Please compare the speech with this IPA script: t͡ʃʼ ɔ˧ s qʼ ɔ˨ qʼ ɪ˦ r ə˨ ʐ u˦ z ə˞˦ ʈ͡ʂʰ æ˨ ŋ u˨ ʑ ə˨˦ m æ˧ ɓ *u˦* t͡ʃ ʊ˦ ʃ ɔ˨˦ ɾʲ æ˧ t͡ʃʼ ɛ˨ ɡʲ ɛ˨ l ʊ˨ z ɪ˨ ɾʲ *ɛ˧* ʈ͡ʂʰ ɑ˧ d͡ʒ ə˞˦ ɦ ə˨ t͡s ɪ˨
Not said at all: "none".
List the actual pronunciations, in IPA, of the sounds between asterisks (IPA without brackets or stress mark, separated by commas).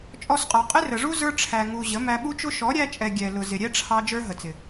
u˦, ɛ˦